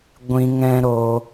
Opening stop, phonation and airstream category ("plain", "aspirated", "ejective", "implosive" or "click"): plain